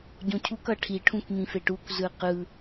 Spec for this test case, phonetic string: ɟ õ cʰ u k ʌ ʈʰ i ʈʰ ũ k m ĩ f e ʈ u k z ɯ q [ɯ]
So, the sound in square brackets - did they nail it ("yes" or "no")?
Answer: yes